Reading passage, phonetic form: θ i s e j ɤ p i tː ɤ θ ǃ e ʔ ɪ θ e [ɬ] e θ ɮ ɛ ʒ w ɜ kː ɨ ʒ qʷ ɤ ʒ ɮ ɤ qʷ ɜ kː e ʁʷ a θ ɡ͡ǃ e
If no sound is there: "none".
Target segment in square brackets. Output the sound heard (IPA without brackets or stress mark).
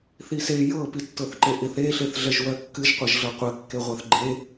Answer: ɬ